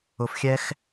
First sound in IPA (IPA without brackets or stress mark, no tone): ʊ